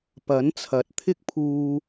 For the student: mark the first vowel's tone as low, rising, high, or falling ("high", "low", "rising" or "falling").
rising